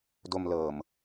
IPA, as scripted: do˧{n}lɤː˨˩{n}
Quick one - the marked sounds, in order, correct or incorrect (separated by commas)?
incorrect, incorrect